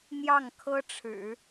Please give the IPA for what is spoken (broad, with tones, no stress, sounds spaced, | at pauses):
n̪ j ɑ˥˩ ŋ kʰ ɤ˥ ʈ͡ʂʰ ɻ̩˨˩˦